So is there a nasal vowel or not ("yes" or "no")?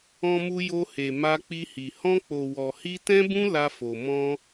yes